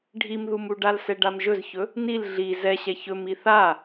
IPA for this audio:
ɖʱ i m ð u m u ɖ a l s ɛ ɖ a m ʒ ɵ z ç ɵ | n i l ɮ i z ɛ ɕ ɛ ç ɵ m i θ a

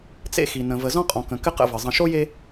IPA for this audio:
t͡s ḛ˦ x i˨ n ə̃˨ v ə˨ z ɔ̃˦ qʼ ɔ̃˨ k ə̃˨ k ɘ˦ q ə̰˦˨ v ɘ˨ zˤ ə̃˨ ʃ o˦ j e˦

